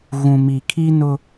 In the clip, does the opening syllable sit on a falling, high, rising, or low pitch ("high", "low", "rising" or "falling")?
low